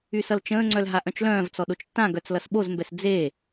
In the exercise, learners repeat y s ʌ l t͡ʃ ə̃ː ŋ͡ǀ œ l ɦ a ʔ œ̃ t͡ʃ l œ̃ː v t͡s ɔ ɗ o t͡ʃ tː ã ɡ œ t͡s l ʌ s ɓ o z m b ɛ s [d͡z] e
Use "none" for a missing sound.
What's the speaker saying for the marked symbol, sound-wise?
d͡z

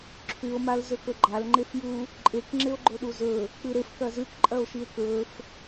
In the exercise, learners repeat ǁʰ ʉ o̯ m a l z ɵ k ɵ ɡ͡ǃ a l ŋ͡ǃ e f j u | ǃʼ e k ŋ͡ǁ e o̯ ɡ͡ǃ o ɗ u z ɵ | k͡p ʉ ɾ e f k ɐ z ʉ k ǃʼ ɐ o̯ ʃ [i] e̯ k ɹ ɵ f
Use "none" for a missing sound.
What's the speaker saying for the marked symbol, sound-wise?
i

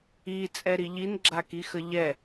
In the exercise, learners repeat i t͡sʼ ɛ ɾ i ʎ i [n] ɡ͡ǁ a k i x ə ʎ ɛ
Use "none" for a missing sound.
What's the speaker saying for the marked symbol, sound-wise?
n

